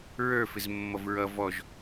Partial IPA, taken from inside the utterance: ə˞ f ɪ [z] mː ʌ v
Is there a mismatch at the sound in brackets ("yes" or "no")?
no